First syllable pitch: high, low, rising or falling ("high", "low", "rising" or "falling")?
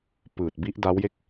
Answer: low